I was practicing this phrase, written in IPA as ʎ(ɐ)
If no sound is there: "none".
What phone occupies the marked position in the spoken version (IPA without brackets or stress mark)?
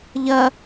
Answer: ɐ